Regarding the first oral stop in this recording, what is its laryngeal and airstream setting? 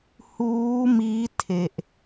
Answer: aspirated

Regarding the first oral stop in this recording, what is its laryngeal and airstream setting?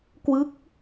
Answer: plain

